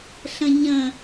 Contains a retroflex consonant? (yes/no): no